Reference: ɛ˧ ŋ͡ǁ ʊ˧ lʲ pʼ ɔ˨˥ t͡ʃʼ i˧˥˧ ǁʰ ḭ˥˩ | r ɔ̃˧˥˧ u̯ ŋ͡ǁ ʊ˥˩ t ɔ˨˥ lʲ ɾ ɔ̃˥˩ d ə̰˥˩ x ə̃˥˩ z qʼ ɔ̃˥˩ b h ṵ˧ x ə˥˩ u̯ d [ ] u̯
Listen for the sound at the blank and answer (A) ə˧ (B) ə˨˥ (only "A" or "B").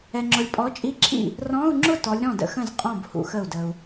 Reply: A